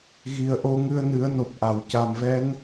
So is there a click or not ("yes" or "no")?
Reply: no